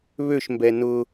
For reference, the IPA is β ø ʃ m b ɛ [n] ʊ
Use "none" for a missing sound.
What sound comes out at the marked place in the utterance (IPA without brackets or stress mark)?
n